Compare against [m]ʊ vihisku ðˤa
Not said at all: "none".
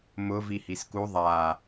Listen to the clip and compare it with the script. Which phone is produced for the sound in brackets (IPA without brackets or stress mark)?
m